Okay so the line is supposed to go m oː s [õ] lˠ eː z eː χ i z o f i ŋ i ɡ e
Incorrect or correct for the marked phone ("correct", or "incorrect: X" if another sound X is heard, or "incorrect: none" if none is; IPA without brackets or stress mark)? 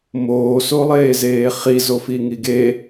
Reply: incorrect: o